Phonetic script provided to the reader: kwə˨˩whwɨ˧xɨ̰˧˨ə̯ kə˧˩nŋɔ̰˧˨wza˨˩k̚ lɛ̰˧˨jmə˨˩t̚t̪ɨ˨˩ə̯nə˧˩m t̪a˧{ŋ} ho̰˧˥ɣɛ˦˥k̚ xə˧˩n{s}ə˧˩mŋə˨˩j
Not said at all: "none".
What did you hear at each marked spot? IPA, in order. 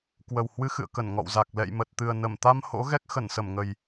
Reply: m, s

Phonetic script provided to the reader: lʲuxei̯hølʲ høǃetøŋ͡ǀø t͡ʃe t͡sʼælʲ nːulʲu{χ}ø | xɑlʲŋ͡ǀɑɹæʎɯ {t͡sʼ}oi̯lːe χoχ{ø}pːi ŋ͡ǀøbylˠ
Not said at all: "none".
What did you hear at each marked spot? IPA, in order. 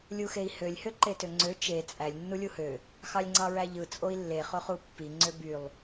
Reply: h, t͡sʼ, u

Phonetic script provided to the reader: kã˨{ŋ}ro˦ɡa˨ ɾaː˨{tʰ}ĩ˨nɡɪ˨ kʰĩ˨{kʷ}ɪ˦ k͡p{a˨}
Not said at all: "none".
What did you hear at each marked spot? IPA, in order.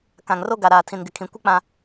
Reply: ŋ, tʰ, kʷ, ã˨

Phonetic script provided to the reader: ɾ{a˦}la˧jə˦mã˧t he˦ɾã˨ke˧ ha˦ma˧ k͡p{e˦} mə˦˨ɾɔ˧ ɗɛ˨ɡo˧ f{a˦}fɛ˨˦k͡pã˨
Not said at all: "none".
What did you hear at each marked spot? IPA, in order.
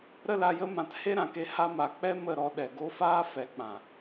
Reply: ə˦, ɛ˦, aː˦

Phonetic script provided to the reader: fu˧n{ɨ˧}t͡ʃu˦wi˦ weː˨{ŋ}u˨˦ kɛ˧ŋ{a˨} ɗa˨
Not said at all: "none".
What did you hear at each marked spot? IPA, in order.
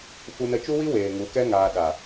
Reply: ə˧, ŋ, aː˨

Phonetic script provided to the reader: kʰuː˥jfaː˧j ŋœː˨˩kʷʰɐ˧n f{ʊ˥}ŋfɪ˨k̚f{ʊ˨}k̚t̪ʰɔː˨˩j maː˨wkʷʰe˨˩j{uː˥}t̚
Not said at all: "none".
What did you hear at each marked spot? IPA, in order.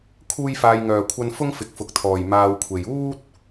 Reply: ʊ˥, ʊ˨, uː˥

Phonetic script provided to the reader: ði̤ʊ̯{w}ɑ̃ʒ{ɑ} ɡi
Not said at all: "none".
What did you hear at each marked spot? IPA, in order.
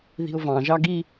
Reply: v, ɑ

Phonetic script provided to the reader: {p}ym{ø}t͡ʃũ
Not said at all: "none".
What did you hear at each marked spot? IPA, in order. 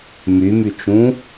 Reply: m, y

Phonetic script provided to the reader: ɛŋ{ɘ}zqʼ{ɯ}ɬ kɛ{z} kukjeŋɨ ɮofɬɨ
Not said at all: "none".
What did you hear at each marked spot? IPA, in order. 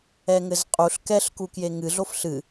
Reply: ɘ, u, ɬ

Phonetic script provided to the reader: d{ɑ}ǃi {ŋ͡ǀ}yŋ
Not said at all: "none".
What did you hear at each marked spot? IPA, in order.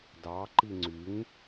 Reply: ɑ, ŋ͡ǀ

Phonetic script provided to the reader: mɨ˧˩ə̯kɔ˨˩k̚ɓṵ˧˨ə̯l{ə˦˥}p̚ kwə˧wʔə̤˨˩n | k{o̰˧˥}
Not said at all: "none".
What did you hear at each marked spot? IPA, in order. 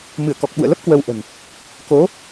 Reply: ə˦˥, o˨˦

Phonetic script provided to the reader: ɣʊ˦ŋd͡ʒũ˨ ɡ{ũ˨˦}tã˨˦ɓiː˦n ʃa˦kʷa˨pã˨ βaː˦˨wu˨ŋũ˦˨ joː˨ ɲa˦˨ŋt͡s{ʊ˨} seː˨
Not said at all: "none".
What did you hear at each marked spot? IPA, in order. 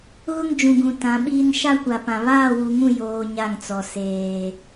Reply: ũ˨, ɔ˨

